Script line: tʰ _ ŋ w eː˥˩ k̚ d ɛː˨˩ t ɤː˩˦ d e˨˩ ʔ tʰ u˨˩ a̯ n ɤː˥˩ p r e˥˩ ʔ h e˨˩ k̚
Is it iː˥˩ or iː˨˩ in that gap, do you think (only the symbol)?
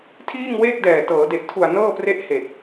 iː˥˩